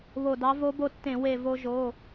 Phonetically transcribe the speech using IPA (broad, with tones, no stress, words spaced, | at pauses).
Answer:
βo˧˩dɑ˧˥ vo˧˥bo˧tːẽ˧˩˧ we˧˩ vo˧ʒo˩˧˩